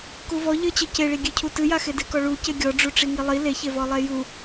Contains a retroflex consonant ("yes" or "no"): yes